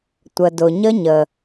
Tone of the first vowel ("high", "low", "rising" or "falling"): low